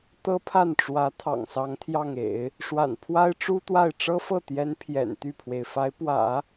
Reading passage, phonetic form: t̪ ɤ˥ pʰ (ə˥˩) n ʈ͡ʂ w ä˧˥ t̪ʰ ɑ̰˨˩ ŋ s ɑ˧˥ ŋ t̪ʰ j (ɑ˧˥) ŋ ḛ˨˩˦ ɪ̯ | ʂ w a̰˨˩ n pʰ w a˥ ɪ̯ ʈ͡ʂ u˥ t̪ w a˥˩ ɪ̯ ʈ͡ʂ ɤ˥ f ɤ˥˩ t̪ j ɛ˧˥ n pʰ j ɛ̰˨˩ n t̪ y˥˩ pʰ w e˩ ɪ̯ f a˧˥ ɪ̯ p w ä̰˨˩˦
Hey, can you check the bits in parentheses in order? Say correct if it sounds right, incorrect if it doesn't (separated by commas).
incorrect, incorrect